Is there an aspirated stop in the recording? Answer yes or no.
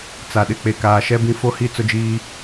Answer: no